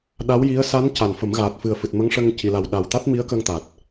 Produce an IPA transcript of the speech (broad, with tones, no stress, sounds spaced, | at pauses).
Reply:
ɗ a˧˥ w j i˧˥ ə̯ s a˧˥ n c a˨˩ n f ə˨˩˦ m ɣ aː˨˩ t̚ f ɨ˨˩ ə̯ f ɨ˨˩ t̚ m ə˧˥ ŋ ʂ ə˧ ŋ c i˨˩˨ l a˨˩ w ɗ a˨˩ w t̪ a˦˥ t̚ m i˧˥ ə̯ k ə˧ ŋ t̪ a˨˩ t̚